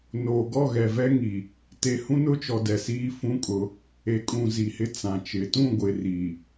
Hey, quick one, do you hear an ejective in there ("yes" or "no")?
yes